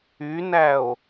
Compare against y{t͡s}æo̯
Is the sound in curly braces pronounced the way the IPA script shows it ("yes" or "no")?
no